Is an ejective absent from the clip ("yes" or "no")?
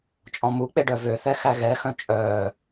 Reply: no